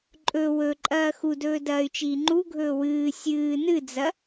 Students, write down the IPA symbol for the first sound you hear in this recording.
ǃʼ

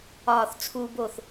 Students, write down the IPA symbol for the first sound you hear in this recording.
ɒː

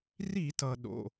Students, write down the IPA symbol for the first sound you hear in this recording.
r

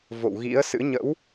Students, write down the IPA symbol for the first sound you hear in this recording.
v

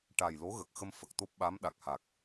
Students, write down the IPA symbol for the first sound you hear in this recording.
ʈ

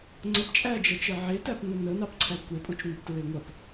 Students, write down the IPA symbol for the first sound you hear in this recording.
ŋ͡ǀ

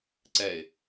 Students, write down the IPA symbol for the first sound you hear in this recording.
ǀ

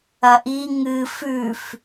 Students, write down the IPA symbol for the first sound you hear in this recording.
ɐ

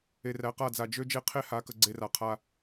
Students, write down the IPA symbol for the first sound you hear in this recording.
e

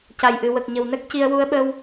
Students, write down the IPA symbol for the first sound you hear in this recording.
c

